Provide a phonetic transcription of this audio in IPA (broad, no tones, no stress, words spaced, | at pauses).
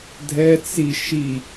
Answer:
dʱɛ t͡si ʃi